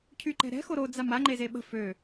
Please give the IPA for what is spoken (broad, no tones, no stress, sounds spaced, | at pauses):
cʰ y ǃ ɛ̤ ɾ ɛ̤ x o ɾ o d͡z a m a ŋ͡ǃ e z e ɓ ə̤ f ø